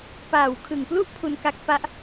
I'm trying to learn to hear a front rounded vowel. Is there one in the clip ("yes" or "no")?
no